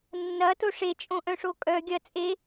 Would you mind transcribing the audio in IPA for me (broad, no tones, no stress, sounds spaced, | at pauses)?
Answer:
nː ɐ t o ʂ e t͡ʃʼ õ ʔ œ̃ ʂ o kʼ œ ɡʲ ɐ t͡sʼ e